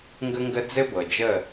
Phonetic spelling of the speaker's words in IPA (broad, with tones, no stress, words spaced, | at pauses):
ŋɡə˦ŋɡə˦ d͡zɘ˦bɤ˨d͡ʒə˦˨